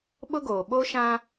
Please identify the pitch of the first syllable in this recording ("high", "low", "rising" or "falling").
high